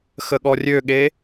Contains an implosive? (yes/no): yes